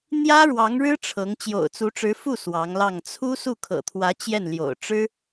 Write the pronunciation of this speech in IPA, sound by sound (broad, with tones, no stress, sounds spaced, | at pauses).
n̪ j ä˥ ɻ w ɑ˧˥ ŋ ɻ ɻ̩˥ ʈ͡ʂʰ ɤ˧˥ ŋ t͡ɕ j o̰˨˩ ʊ̯ t͡s u˧˥ ʈ͡ʂ ɻ̩˧˥ f u˥˩ s w ɑ˧˥ ŋ l ɑ˥˩ ŋ t͡sʰ u˥ s u˥˩ kʰ ɤ̰˨˩ t̪ʰ w ä˧˥ t͡ɕ j ɛ˥˩ n l j o̰˨˩ ʊ̯ ʈ͡ʂ ɻ̩˥